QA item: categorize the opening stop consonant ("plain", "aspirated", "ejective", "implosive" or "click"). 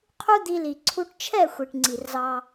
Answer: aspirated